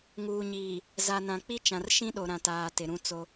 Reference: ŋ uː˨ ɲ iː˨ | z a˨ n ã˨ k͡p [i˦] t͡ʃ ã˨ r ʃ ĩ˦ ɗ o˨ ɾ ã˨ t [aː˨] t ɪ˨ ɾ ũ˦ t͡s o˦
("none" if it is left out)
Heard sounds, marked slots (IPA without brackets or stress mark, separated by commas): i˦, aː˨